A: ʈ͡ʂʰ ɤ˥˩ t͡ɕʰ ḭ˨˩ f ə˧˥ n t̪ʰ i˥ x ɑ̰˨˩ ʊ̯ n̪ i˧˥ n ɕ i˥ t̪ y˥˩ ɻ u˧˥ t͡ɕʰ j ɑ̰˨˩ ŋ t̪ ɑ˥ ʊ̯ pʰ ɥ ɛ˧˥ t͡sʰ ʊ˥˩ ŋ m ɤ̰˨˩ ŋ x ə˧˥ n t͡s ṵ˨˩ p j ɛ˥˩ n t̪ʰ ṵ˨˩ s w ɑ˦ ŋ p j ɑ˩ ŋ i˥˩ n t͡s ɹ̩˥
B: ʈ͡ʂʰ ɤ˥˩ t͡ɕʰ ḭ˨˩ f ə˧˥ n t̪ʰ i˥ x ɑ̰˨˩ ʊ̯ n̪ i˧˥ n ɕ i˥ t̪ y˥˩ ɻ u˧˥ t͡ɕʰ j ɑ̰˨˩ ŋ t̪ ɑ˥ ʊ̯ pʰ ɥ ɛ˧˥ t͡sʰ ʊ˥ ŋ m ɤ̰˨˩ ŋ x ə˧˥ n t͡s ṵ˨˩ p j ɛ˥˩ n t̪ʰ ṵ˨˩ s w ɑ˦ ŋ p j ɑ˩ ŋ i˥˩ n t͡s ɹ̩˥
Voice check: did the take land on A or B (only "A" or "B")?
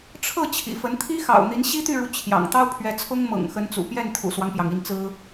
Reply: B